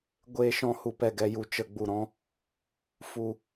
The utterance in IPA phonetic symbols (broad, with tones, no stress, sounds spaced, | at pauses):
ɡʷ eː˨ ʃ ɔ̃˨ h u˨ p ɛ˨ ɡ ɛ˨ j u˨ t͡ʃ ə˨ ɡ͡b u˨ ɾ ɔ̃˧ | f u˨